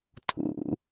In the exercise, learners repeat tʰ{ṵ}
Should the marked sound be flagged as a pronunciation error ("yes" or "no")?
no